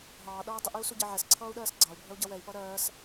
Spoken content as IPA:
ɦ ɑː ɗ ʌː dˤ ɪ ʔ i u̯ s u ɟ ɪ ʕ ɛ s ǀʰ ʌː u̯ ɗ ɜː s ɡ͡ǀ ɑ u̯ bʱ ɜ u̯ ɟ ʌ w ɛ i̯ p ʌ ɾ ɜː s

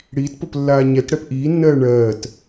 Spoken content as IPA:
ɽ iː t p o p lː aː ɲ ɛ t ɽ ɛ p ʔ iː nː ɜː ɳ ɜː t

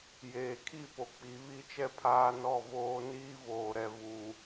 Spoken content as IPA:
j eː˨ kʰ i˦˨ p o˨ k͡p i˨˦ β i˦ t͡ʃ ɛ˦ pʰ aː˦ n ɔ˦˨ v oː˦ n iː˦ v oː˨ ɾ ɛ˨ v uː˨

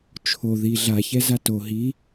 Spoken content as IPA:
t͡ʃʰ o ð i ɮ a ç ɛ z a t o ɦ i

